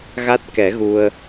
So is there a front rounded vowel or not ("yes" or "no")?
no